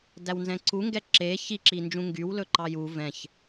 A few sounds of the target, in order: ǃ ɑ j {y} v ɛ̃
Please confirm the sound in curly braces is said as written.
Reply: no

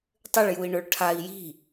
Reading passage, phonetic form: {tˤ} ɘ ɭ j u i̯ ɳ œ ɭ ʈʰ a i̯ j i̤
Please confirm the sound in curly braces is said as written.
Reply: yes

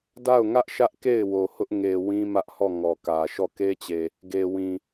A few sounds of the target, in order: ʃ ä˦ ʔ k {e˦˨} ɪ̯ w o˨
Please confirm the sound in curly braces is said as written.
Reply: yes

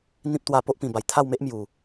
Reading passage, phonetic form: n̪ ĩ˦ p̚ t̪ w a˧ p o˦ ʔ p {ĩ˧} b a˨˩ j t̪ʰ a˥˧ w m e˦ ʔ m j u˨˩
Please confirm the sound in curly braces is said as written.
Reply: no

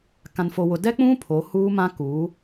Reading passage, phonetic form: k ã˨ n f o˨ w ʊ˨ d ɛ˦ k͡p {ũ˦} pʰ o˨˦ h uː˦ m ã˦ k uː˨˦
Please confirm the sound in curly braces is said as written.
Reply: yes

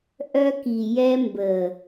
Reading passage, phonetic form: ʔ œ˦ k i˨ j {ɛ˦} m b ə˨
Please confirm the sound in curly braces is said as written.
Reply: yes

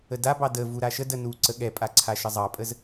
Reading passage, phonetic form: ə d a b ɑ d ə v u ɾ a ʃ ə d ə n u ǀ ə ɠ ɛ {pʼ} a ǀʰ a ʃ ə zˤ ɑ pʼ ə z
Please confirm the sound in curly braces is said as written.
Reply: yes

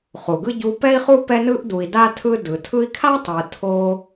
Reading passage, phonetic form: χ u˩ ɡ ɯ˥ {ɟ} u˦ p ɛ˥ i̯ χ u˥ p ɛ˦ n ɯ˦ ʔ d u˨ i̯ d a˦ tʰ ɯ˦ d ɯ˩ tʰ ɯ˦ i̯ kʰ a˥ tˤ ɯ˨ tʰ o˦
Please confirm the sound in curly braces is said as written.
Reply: yes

